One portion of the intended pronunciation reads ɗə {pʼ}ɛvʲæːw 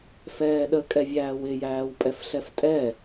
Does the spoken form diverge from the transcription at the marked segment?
yes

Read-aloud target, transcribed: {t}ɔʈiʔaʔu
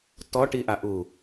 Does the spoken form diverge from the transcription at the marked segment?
no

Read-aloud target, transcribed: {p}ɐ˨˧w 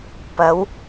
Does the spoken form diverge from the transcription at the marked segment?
no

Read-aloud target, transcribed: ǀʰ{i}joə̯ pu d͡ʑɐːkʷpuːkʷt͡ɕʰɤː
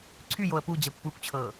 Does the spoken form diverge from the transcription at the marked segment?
yes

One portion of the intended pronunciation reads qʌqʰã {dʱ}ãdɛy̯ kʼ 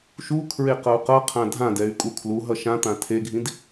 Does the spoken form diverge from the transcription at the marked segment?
no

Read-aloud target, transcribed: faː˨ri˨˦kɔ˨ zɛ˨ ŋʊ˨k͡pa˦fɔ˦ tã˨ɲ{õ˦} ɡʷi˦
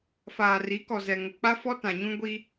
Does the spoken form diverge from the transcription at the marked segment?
yes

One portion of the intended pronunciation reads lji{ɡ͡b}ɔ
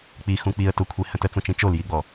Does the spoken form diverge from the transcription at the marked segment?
no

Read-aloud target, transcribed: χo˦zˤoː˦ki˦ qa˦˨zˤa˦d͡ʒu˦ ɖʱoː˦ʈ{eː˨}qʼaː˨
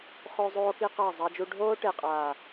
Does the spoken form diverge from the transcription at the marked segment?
yes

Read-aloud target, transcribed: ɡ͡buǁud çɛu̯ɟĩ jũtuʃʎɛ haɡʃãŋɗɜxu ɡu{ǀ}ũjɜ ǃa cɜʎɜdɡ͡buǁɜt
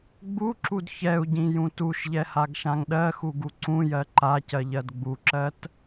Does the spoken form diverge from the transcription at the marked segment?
no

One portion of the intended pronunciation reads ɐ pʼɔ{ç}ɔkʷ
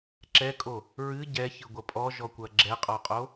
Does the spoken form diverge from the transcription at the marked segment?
yes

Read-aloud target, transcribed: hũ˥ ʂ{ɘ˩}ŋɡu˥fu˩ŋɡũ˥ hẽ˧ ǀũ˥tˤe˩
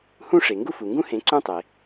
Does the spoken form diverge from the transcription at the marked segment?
yes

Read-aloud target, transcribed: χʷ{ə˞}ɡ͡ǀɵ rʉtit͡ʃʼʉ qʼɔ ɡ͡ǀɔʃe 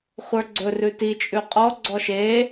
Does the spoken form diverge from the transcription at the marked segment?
no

